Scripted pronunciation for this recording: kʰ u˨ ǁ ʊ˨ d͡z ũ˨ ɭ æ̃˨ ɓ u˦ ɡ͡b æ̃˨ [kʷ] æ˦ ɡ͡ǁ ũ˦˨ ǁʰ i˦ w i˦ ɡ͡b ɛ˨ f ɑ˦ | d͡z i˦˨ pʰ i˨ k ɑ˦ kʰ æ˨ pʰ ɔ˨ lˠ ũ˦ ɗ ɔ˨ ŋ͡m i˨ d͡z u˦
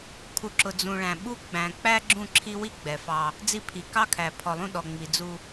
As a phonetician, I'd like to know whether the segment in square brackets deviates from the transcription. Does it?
yes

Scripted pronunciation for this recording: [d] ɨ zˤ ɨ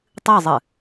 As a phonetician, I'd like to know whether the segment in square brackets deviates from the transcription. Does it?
yes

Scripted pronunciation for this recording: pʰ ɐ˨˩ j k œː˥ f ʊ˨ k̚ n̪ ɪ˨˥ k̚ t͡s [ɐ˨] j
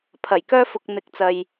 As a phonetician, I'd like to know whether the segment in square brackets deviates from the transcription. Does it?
no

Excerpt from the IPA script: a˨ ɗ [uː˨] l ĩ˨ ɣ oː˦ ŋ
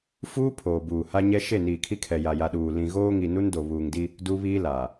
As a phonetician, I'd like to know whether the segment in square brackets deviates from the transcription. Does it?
no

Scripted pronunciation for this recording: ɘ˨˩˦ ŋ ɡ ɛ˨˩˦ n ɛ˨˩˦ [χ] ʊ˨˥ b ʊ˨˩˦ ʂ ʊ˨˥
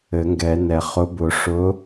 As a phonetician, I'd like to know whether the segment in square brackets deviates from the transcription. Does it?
no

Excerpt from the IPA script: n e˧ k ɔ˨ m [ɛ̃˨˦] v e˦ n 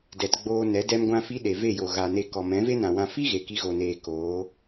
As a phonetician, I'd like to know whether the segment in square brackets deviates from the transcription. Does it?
no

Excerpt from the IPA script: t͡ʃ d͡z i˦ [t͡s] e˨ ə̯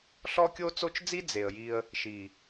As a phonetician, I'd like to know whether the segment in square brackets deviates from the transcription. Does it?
yes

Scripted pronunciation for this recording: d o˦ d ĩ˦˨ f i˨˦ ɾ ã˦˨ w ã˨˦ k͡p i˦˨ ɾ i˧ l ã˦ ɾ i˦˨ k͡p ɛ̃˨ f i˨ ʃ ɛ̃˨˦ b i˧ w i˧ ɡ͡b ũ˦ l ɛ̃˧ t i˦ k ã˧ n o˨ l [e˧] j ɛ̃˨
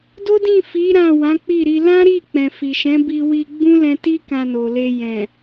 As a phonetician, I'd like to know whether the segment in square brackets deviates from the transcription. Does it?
no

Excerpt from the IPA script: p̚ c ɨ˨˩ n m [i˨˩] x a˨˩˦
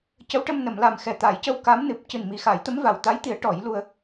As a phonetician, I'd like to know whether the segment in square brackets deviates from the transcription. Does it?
no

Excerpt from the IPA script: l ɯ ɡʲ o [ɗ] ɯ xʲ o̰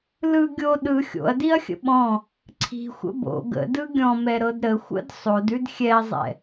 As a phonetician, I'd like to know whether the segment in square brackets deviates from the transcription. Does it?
no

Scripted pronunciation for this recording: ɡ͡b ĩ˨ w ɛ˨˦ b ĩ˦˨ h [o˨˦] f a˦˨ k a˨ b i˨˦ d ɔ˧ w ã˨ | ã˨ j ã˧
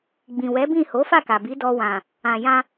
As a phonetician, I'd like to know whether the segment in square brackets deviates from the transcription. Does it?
no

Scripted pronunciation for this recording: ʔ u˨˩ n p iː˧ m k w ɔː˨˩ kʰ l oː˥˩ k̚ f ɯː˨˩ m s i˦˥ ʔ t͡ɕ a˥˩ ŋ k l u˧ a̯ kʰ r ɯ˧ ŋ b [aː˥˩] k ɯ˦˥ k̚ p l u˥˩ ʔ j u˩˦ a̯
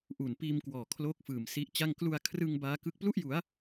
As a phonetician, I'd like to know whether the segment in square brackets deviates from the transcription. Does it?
yes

